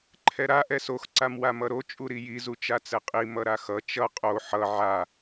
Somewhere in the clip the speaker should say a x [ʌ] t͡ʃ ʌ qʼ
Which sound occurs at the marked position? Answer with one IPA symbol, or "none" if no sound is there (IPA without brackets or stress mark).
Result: ʌ